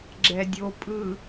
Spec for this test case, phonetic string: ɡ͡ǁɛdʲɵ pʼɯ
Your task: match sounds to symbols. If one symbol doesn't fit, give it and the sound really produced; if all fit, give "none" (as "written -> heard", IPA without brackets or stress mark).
ɵ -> o